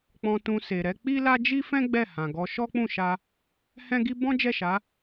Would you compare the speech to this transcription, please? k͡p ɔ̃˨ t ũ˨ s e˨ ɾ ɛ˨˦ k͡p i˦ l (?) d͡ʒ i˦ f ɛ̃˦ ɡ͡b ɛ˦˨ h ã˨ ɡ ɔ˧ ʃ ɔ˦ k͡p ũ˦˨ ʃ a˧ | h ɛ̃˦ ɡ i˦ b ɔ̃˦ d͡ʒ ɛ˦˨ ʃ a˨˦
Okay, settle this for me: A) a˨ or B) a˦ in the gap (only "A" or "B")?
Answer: B